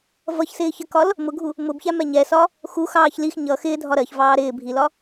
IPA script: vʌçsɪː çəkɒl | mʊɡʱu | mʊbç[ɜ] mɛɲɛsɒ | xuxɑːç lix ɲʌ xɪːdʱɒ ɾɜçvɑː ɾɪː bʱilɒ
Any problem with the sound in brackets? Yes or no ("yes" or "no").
yes